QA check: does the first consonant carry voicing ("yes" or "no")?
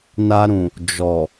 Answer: yes